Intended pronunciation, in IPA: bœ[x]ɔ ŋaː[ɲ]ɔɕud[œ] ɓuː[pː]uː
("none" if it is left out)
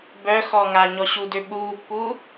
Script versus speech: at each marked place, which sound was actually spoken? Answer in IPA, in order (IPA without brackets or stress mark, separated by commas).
x, ɲ, ø, pː